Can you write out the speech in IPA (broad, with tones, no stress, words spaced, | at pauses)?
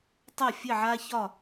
tˤɐ˥˧ fʲɘ˥˧ʕa˥çɒ˥˧